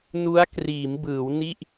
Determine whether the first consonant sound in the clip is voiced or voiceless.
voiced